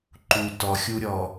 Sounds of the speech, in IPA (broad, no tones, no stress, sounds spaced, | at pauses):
ǃ u t ɔ xʲ u ɾʲ ɔ